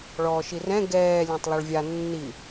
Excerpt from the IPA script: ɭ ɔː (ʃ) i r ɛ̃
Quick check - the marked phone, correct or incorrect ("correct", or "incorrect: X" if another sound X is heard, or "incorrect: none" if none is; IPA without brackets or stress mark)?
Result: correct